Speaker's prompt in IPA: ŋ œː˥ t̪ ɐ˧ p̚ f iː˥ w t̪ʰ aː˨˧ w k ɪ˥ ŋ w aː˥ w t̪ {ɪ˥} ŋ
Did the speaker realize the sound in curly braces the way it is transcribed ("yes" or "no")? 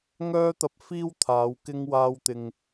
no